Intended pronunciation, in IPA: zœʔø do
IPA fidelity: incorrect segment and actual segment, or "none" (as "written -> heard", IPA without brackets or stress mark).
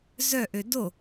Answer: none